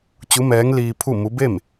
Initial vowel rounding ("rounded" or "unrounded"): rounded